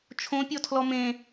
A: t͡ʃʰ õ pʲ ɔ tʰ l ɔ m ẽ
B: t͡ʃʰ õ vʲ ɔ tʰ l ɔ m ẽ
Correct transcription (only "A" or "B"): A